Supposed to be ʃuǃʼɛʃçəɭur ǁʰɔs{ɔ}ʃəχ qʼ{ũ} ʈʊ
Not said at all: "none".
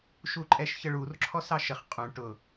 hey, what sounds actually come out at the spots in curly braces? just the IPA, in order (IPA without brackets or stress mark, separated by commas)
ɑ, ũ